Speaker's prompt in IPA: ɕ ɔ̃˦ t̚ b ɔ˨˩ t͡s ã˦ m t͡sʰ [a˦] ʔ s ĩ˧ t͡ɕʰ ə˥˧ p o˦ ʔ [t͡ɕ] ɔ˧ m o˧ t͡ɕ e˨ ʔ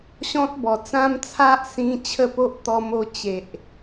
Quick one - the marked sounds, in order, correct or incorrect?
correct, incorrect: t̪

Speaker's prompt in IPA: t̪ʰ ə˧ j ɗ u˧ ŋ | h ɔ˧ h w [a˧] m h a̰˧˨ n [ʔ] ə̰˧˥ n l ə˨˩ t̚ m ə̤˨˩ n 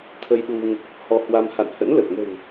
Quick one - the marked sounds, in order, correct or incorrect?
correct, incorrect: h

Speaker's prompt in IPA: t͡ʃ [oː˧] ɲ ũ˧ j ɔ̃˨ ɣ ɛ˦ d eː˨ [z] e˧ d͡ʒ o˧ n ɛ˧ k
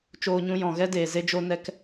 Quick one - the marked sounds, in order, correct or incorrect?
correct, correct

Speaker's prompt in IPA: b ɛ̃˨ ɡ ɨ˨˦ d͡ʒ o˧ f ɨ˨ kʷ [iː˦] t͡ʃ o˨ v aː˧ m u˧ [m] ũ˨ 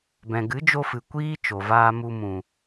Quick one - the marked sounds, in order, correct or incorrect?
correct, correct

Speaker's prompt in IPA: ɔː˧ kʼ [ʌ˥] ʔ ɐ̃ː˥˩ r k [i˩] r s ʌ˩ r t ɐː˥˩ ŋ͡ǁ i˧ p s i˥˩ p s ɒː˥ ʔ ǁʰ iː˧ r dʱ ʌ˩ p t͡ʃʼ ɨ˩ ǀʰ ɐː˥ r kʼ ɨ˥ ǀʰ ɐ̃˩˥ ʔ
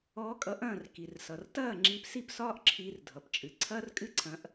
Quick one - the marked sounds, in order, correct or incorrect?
incorrect: ʌ˩˥, correct

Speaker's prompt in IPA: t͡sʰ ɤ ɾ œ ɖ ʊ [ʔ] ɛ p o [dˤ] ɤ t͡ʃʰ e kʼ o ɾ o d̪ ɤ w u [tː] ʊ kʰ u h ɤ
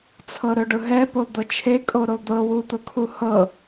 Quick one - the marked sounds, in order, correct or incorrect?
incorrect: ɦ, incorrect: d̪, incorrect: t̪

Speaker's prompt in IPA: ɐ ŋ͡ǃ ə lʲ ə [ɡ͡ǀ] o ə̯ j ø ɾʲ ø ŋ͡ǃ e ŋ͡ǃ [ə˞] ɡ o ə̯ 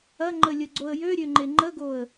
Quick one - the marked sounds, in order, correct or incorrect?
correct, incorrect: ə

